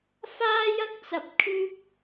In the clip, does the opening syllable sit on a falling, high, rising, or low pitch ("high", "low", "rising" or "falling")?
high